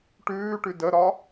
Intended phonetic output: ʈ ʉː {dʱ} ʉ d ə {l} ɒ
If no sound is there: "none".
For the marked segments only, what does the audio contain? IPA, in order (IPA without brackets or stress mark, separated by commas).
ʈ, ɾ